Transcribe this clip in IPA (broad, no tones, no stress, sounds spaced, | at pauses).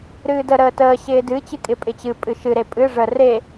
ɾ ɨː d ə ɾ əː t əː ɕ ɪː d ɨ t͡ɕ ɨ kʼ ɪ pʼ ɪ t͡ɕ ɨ pʼ ɨ ʃ ɨ ɾ e pʼ ɨ ʐ ə r e